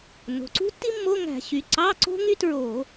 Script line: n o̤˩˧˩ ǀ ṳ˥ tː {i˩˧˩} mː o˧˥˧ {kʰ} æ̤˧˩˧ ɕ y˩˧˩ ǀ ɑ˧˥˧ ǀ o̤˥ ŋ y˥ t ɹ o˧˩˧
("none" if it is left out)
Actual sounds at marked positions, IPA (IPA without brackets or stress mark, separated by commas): i˥, ŋ